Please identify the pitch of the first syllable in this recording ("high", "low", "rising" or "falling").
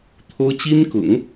high